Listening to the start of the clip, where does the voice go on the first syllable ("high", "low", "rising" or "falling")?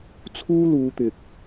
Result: high